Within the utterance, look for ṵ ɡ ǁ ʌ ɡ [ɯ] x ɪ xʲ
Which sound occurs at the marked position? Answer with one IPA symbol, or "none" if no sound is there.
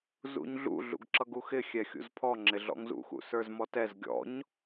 u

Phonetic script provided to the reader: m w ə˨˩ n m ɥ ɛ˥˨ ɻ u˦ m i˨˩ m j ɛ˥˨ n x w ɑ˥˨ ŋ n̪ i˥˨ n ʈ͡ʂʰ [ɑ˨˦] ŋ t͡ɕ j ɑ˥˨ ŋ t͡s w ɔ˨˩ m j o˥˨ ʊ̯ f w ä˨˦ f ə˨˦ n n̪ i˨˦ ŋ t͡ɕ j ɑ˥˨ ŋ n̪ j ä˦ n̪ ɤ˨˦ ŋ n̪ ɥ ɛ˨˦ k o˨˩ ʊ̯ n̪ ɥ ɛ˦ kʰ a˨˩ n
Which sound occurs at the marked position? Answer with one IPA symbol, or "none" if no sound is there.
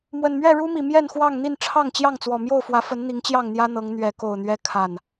ɑ˥˨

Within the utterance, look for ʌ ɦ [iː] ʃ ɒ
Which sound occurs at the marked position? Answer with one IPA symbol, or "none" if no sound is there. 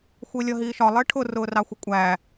iː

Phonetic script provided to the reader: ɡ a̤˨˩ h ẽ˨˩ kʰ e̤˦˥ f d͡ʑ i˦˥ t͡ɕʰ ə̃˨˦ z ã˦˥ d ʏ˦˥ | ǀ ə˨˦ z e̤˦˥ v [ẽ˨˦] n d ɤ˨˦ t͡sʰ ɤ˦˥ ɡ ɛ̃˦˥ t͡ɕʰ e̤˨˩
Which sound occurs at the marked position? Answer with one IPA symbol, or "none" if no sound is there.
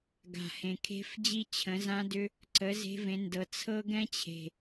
ẽ˨˦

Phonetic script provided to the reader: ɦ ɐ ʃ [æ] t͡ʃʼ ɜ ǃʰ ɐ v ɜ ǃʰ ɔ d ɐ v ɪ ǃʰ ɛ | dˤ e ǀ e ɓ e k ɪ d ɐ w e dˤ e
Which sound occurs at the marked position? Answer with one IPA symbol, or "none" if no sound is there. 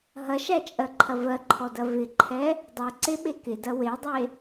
æ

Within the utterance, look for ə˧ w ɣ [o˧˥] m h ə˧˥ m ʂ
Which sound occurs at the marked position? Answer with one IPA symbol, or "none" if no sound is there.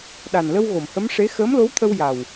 o˨˩˨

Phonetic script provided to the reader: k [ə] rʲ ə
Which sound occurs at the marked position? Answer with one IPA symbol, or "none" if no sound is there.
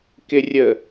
ɪ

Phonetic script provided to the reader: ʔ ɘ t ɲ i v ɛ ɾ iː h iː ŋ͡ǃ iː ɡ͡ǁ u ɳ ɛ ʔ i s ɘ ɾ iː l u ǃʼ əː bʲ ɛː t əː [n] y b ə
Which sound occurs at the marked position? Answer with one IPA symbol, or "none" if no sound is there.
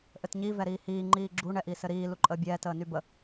n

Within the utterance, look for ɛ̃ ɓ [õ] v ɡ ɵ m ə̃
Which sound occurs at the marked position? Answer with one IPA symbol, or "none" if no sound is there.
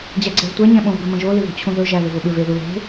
õ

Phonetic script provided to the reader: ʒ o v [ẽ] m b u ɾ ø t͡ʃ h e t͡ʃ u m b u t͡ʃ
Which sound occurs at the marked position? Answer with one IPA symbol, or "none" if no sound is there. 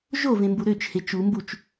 ẽ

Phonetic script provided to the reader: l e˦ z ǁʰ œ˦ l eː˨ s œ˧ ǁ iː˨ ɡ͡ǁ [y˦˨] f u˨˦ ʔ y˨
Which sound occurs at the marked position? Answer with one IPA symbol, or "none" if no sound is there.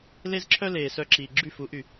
y˦˨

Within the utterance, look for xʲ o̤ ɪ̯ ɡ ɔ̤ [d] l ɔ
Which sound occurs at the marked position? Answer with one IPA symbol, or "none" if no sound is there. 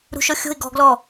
ɡ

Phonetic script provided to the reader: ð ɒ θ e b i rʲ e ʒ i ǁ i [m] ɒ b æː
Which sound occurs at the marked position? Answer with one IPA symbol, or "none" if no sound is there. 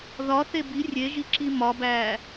m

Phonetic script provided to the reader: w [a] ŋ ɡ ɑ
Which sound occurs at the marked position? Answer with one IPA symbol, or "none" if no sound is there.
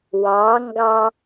ɑ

